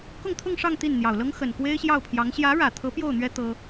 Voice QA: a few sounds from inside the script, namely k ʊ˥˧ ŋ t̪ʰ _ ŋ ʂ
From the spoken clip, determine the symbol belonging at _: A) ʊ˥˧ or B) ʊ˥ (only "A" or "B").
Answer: A